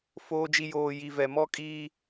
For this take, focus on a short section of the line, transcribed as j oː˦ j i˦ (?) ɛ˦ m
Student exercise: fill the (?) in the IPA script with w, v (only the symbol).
v